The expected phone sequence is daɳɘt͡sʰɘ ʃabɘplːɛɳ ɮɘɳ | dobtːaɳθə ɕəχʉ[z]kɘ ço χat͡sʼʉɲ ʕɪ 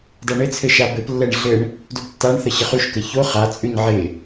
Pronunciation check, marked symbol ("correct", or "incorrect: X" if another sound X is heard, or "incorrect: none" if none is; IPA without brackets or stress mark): incorrect: ʃ